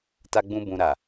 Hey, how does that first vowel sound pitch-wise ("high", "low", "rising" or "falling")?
high